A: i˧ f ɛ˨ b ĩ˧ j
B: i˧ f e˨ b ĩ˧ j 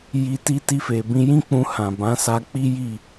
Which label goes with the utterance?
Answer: B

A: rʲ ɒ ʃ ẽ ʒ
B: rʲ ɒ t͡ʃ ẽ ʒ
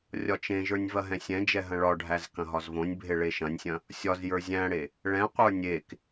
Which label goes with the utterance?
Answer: B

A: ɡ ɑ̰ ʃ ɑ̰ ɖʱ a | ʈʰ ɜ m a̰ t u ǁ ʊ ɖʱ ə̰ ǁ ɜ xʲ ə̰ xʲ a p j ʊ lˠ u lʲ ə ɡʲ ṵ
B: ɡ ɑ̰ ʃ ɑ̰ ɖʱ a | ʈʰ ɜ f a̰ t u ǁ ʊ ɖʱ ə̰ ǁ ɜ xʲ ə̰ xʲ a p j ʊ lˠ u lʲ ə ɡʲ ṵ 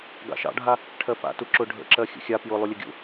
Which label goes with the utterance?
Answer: B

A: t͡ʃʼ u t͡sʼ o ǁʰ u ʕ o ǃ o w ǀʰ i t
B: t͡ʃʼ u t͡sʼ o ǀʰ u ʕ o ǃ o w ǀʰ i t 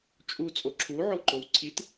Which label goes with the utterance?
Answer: A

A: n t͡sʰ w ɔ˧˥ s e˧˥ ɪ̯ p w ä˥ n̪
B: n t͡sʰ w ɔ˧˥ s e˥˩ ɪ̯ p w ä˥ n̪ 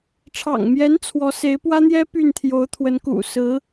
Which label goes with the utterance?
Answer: A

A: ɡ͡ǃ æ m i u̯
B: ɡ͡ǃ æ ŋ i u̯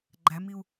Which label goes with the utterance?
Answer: A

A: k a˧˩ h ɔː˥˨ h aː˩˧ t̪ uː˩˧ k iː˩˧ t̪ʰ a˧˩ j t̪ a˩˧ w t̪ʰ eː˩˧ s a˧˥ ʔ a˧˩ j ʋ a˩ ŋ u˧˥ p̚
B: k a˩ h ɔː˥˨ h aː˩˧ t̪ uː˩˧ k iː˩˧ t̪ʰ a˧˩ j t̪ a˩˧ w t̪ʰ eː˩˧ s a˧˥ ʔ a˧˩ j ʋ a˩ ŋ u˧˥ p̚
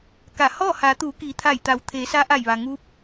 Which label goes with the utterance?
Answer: A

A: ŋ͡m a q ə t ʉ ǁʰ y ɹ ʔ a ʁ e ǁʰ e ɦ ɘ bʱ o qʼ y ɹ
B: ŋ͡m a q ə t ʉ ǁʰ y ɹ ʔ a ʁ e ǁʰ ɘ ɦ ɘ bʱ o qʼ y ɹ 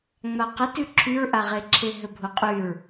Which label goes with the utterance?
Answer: A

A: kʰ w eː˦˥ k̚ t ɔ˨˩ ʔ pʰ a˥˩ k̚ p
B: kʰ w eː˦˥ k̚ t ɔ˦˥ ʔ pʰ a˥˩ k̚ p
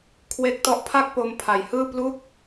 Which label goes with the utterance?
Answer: B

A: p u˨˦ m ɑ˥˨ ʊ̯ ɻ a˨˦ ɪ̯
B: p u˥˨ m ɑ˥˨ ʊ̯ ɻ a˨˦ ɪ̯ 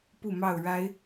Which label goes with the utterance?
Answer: B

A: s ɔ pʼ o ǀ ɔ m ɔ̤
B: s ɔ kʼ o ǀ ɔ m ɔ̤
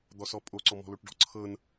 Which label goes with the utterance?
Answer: A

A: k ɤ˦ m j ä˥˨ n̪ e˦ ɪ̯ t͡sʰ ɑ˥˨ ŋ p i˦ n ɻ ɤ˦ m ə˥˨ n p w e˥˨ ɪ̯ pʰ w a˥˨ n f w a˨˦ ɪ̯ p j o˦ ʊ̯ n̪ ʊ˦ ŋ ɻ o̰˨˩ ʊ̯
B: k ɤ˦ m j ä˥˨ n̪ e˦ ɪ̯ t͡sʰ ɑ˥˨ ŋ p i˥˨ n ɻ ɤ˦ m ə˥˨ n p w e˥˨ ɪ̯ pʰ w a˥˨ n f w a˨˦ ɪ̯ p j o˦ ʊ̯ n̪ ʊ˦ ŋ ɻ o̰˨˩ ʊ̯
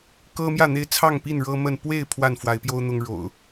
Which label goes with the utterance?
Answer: B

